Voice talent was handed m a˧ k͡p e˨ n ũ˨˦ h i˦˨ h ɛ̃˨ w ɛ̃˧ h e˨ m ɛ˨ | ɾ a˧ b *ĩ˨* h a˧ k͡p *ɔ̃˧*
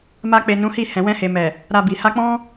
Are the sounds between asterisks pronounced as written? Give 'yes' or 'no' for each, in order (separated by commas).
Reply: no, no